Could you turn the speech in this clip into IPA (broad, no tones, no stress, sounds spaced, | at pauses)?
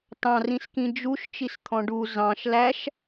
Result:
t ɑ̃ r ĩ s k ĩ d͡ʒ u ʃ t͡ʃ i s t̪ʰ ɔ̃ ɖ u z ɑ̃ ʃ l æ ʃ